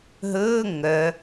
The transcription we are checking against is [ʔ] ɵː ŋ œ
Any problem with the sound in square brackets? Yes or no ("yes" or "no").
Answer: yes